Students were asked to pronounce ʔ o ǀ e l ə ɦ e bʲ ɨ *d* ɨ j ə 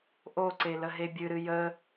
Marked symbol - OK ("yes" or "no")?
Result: no